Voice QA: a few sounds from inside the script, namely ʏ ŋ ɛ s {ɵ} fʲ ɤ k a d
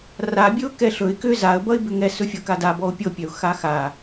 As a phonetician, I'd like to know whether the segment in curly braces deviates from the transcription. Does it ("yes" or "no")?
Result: no